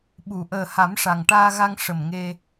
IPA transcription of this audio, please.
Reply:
ɓ u˨˩˨ ʔ əː˨˩ h a˨˩˦ m ʂ a˨˩ ŋ ʈ aː˧ ɣ a˧ ŋ ʂ ə˨˩ m ŋ e˧

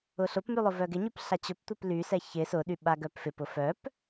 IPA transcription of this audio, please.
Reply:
ʊ ɬ ʊ p m y lˠ ʊ v œ ɡ ɪ ɲ y p ɬ a t͡ɕ ʊ p tʷ ɛ p l y s ɛ ç ɪ s ʊ ɗ y ɓ a ɡ œ p f ɪ p ʊ f œ p

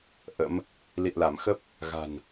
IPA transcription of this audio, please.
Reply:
ʔ ə̰˧˥ m | l ḭ˧˨ ə̯ l a˧˩ m x ə˦˥ p̚ | ɣ a̤˨˩ n

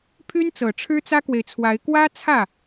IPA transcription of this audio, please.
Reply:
pʰ y˥ n t͡s ɤ˨˩ ʈ͡ʂʰ ɻ̩˥ t͡s ä˥ k w e˨ ɪ̯ t͡sʰ w a˧˥ ɪ̯ k w ä˥ t͡sʰ ä˥˩

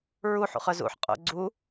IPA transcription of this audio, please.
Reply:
ɹ u ħ ṵ χ œ z ṵ ħ qʼ o̰ ɡ͡ǀ u

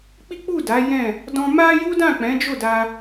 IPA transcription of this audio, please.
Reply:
k͡p i˦ k͡p u˦˨ d a˨˦ j ɛ̃˦˨ | d ɔ̃˧ m a˦ j u˦ d ã˦˨ k͡p ɛ̃˨˦ d͡ʒ o˦˨ d a˧

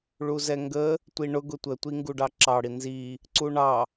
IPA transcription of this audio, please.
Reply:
ɭ u z ɛ ŋ ɡ ə | tʷ i ɳ ʊ ɡ ʊ tʷ ə tʷ i ŋ ɡ u ɖ ɑ ǁ ɑ ɽ i n z i | ǀ u ɳ ɑ

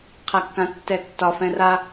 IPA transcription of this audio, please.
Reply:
qʰ a kː ã tː ɛ tː ɒ f ɛ̃ r a

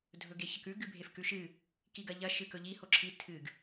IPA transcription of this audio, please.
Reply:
dʱ ɵ ɡ e ç ɐ k ʉ ɡ ɨ bʱ e f k ʉ ʃ ɨ | k i ɡ ɐ ʎ ɐ ʃ ɨ k ɵ ʎ i h o ǁʰ i tʰ ɨ ɡ

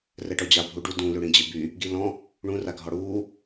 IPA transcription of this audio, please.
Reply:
r ɛ ʈ ɔ d͡ʑ a bʱ u ɖ u d ũ l ʉ ɽ ĩ d͡ʑ ɪ b y | ɡ i l ɔ̃ | ɳ ũ r a ɡʱ ɔ ɽ uː

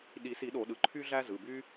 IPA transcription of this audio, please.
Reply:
ɗ i˨˩˦ s i˨˩˦ ɗ o˨˩˦ ɗ ɯ˩˧˩ ǃʰ y˦ ɮ æ˦ z ɯ˩˧˩ b y˦

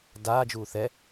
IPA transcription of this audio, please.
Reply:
d aː d͡ʒ uː θ ɛ

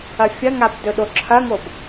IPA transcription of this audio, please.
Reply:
ɐ fʲ ɐ ŋ a b d ɵ ɗ o ǁʰ ɐ ŋ o b

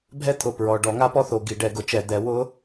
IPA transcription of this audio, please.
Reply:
bʱ ɛ˥ t̪ʰ ʊ˧˩˧ p ɹ ɔ˩˧˩ ɖ ɔ˧˩˧ ŋ a˥ p ɔ˥ θ o˩˧˩ ɡ i˧˩˧ ɖ ɛ˨˦ ɡ ʊ˧˩˧ t͡ʃ ɛ˧˩˧ d̪ ɛ˨˦ w ʊ˥

